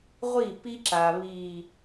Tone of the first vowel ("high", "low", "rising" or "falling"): falling